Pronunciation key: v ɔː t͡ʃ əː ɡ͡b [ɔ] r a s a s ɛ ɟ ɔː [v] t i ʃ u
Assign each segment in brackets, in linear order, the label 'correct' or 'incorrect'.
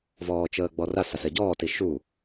correct, incorrect

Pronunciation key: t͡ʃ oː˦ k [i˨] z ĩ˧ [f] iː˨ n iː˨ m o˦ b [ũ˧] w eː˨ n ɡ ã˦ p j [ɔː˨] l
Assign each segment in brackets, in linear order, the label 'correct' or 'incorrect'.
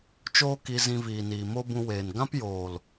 incorrect, incorrect, correct, incorrect

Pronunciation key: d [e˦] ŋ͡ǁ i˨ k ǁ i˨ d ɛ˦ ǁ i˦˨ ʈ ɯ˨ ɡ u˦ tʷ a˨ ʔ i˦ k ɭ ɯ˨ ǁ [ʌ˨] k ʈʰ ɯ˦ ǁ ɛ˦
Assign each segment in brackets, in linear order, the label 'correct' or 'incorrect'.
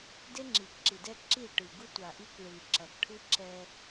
correct, correct

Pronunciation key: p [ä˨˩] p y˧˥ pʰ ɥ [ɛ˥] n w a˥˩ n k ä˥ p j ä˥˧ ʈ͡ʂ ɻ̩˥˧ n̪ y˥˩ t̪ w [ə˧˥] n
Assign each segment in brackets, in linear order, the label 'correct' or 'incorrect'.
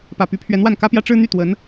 correct, incorrect, correct

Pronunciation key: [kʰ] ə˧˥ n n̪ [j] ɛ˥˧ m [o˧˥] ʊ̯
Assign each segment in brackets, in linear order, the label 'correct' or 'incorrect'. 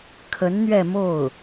correct, incorrect, incorrect

